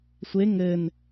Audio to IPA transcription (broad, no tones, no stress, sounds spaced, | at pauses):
sʷ e ŋ ɘ n